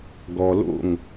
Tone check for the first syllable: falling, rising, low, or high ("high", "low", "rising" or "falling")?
low